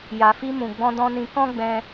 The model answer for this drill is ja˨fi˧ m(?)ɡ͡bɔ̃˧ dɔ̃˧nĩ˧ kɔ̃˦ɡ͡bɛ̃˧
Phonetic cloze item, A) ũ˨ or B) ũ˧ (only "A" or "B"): A